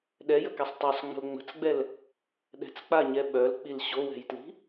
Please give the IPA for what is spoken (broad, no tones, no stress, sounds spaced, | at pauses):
ɗ ɛ j ə k ɛ sˤ tˤ œ sˤ ŋ͡m ə̤ l ŋ͡m ə̤ t͡s ɡ͡b ɛ l | ɗ ɛ̤ t͡s k͡p a ɲ ɛ ɓ œ l k͡p i l ɕ o w ɛ̤ j t l i̤